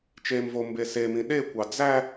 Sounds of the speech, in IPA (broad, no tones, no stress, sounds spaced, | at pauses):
t͡ʃ e m v o m b e s e m ĩ ɗ e kʷ ɑ d͡z æ